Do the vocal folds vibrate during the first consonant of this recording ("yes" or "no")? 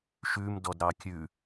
no